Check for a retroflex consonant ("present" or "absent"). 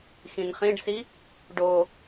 present